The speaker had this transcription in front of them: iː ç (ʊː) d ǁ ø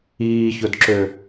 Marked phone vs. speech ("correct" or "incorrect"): incorrect